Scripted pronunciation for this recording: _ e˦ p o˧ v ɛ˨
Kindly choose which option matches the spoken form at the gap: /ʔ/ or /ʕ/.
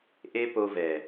ʔ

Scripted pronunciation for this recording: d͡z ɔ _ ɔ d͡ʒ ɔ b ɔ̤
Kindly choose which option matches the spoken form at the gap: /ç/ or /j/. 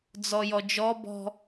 j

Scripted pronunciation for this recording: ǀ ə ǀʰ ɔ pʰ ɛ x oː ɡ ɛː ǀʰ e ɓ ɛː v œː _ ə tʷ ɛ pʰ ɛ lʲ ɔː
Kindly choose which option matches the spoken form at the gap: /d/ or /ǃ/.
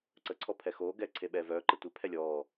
ǃ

